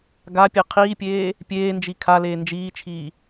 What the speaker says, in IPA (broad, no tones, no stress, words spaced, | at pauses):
ɡapʲe qʰiːpʲeː | pʲeːnd͡ʒi kʰaleː nd͡ʒiːt͡ʃʰiː